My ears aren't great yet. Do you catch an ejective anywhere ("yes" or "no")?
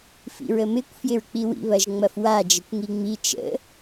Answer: no